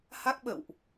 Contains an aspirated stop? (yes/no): no